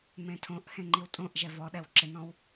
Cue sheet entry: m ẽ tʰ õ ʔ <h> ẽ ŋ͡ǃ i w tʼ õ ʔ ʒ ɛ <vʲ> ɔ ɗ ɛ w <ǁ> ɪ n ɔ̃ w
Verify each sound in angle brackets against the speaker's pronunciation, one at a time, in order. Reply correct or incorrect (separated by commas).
correct, incorrect, correct